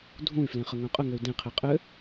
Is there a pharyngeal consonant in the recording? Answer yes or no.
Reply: no